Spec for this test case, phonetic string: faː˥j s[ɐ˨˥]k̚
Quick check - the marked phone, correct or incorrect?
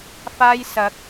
correct